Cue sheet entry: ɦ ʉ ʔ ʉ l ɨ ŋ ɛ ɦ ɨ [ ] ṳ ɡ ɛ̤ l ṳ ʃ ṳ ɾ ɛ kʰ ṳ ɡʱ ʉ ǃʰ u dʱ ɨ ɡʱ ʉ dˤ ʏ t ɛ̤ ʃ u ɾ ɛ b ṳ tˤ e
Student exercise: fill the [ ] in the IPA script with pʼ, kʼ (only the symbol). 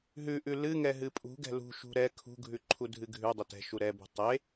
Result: pʼ